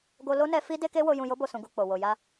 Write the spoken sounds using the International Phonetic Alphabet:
ɡ o˧ l o˦ n ɛ˧ f i˦ d e˦ k e˦ w o˧ j ũ˨ j o˧ b o˨ s ũ˨˦ ɡ u˧ k͡p o˨ w o˨ j a˧

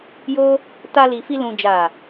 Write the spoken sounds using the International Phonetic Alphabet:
j o˦ | t a˧ l i˨ f i˧ l ũ˨ d͡ʒ a˨

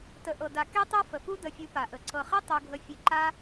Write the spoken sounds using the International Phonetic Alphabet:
t ə˨ ʔ ɤ˨ d a˨ k e˦ tˤ o˦ f ə˨ f u˦ d ə˧ fʲ u˧ p a˨ ʔ ə˨ ǀ ɤ˨ χ e˦ tˤ o˧ ɡʱ ə˧ fʲ e˧ ǃ a˦

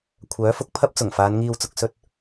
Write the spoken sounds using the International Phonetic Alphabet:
kʷʰ œː˨˥ f ʊ˨˥ k̚ pʰ ɐ˥ p̚ t͡s ʊ˨˩ ŋ f aː˨˧ n ŋ iː˨ w t͡s ʊ˨ k̚ s ɵ˧ t̚

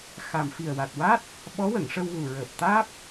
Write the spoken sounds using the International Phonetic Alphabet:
x a˨˩ m f i˨˩ ə̯ w a˨˩ t̚ w a˦˥ t̚ | ɓ ɔ˧˥ w ə˨˩˨ ŋ ʂ ə˧ w ɣ u˨˩ ɹ əː˨˩ p̚ t̪ aː˦˥ p̚

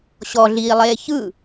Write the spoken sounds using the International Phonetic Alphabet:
ɕ ɔ ɮ iː lˠ eː ç ɯ

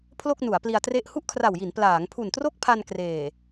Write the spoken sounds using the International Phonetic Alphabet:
pʰ l o˥˩ k̚ n u˩˦ a̯ p l i˧ a̯ t r e˥˩ ʔ h u˥˩ ʔ kʰ r a˨˩ w j i˩˦ n p l aː˩˦ ŋ pʰ u˨˩ n t r o˥˩ k̚ pʰ a˧ n k r eː˨˩

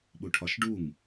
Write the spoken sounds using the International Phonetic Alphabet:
ɓ u ʈʰ ɒ ʃ ɖ u ŋ

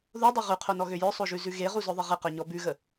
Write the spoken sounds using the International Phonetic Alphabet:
ð o dˤ o ʁ ʉ qʰ o n ɔ ɣ ø j œ sˤ o ʒ ʉ z ʉ ɣ e ʁ u z œ ðˤ ɪ ʁ ɪ q œ ɲ ɔ b ʉ ɣ ə

